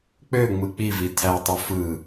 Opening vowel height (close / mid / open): mid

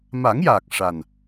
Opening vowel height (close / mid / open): open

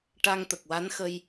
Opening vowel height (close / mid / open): open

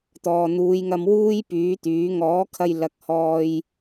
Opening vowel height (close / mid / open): mid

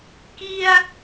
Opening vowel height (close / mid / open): close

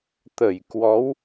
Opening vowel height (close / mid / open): mid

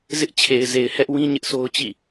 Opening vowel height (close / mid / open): close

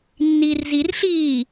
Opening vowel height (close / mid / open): close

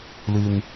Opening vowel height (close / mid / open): close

